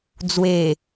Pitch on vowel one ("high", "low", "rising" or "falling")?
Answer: low